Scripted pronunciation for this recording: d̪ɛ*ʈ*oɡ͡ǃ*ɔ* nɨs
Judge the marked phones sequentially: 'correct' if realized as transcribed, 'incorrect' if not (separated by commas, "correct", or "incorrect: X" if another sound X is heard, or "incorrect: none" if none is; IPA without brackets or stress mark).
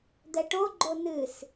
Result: correct, incorrect: o